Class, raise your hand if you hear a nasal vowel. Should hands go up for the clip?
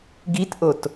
no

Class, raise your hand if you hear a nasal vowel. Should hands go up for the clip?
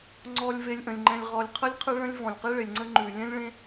yes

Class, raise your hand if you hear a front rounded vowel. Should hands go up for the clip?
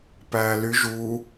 yes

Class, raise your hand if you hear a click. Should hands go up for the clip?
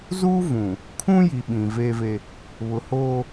no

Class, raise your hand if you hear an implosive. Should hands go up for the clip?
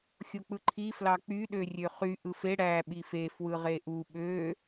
yes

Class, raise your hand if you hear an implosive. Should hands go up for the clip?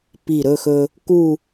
no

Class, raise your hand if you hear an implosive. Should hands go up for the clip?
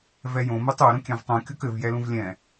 no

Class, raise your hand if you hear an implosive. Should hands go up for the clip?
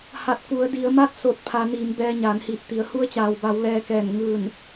no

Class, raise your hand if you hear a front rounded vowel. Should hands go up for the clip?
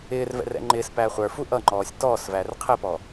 no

